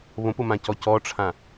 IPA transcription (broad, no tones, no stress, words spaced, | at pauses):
βõpʊmãcɔ cɔʈ͡ʂʰã